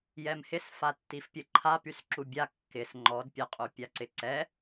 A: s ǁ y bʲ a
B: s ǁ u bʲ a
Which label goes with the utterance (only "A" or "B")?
B